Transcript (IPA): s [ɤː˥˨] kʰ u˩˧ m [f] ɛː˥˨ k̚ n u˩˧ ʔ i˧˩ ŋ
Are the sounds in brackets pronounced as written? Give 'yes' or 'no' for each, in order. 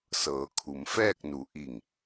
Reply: no, yes

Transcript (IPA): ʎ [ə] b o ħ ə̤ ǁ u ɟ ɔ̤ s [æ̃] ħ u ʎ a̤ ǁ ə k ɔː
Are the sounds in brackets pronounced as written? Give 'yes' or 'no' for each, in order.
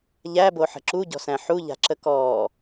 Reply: no, yes

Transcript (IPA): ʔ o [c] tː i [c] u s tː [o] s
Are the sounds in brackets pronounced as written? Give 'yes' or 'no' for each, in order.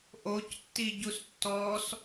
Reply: yes, no, no

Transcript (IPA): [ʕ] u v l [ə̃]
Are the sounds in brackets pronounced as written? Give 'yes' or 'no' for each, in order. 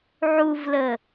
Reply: yes, no

